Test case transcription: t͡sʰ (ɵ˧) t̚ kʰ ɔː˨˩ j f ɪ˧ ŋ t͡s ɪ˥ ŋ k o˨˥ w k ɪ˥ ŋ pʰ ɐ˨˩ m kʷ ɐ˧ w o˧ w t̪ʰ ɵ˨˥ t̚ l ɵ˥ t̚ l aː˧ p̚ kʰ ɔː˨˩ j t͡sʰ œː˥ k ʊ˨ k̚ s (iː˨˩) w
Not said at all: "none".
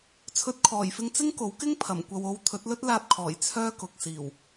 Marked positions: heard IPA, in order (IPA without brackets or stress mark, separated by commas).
ɵ˧, iː˨˩